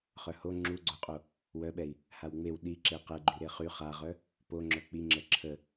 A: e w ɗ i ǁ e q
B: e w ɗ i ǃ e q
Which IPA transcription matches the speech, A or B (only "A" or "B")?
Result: A